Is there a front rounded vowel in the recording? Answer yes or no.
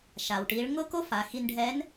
no